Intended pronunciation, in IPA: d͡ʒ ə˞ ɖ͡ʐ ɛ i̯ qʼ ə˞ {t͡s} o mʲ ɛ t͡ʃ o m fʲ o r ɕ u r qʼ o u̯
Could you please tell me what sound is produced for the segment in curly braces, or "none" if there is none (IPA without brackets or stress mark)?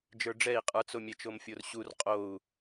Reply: t͡s